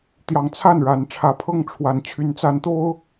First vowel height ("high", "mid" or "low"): low